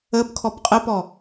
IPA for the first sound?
ə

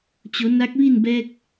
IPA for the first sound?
t͡ɕ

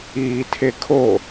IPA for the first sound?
iː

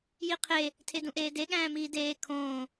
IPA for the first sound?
j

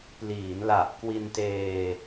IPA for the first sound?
p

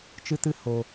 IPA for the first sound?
t͡ʃ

